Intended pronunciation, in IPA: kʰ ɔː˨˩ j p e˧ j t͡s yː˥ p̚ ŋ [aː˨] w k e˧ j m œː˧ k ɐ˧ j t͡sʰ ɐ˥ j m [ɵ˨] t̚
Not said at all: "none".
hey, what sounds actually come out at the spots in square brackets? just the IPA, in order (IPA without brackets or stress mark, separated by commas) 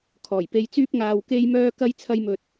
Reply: aː˨, ɵ˧